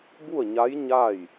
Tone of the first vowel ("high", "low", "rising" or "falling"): falling